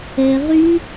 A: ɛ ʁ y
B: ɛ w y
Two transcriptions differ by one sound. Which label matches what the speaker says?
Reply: A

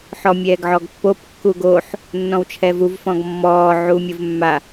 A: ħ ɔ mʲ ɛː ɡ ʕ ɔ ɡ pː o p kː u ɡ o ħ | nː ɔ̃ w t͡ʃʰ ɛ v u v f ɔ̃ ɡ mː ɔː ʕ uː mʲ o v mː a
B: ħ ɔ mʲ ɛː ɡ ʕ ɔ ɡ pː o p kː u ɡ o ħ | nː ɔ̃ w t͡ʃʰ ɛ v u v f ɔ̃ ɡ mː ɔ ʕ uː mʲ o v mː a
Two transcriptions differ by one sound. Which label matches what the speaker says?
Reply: A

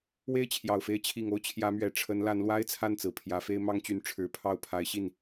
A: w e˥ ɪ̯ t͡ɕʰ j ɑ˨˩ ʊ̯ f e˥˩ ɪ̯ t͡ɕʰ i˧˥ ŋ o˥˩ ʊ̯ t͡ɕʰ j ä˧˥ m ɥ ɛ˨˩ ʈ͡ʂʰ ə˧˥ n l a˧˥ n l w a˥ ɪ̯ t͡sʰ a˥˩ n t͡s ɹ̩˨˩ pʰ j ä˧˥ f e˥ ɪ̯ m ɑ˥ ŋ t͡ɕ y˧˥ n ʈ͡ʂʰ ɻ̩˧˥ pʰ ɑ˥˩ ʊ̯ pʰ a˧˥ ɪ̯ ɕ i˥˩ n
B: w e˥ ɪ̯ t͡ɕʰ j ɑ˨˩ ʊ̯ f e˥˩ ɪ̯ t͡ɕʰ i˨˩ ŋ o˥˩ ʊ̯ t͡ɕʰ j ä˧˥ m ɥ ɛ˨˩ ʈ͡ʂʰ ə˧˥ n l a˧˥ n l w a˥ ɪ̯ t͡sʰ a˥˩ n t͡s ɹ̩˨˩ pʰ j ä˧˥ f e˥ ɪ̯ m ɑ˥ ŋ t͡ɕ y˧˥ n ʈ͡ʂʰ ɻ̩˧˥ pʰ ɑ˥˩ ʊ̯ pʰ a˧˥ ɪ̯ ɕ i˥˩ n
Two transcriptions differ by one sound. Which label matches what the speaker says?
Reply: B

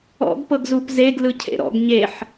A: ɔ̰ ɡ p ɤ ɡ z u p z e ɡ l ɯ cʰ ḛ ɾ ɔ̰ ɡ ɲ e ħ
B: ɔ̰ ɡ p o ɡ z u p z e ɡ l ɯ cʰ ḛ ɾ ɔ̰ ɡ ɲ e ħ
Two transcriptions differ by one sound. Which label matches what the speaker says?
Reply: A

